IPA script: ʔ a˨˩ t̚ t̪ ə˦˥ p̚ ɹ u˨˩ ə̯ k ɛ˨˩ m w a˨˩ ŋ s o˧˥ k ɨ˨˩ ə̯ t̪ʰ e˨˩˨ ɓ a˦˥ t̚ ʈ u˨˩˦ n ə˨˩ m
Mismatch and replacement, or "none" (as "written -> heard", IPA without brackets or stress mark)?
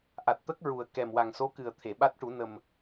p̚ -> k̚